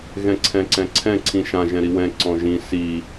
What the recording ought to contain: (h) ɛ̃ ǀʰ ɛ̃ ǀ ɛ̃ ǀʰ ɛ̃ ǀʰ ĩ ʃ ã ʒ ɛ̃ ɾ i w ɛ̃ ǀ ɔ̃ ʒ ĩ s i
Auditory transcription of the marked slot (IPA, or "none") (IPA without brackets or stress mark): ɣ